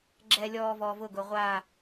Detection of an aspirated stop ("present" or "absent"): absent